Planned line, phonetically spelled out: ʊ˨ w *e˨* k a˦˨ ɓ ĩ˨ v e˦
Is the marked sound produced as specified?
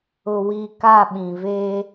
no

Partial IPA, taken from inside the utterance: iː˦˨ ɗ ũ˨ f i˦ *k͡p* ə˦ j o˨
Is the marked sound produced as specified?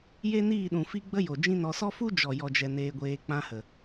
no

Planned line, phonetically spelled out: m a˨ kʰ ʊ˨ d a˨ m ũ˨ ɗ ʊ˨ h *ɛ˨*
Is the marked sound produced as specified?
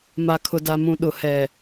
yes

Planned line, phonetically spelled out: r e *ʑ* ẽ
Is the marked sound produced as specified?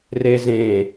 no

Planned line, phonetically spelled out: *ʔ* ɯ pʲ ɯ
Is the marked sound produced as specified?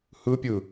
no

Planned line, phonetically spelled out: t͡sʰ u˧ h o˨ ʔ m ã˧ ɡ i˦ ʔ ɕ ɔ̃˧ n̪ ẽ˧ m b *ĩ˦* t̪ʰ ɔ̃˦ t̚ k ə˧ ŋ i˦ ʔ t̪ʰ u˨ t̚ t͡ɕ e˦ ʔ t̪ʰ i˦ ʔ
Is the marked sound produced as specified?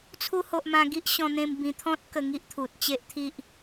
no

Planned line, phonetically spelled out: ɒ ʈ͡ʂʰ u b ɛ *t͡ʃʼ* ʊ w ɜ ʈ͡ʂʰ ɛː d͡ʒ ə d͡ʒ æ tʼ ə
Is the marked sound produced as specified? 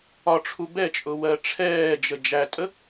yes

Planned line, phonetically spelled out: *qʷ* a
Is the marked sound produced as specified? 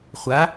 no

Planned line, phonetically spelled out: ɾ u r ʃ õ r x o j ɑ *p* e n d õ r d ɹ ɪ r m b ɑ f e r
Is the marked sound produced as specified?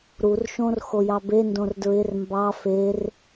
no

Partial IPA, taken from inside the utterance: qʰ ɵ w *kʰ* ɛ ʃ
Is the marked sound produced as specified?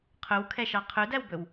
yes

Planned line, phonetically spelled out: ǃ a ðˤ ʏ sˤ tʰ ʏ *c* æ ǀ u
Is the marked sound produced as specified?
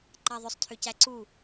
yes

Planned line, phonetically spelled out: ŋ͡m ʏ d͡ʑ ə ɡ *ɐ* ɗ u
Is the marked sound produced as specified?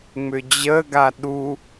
no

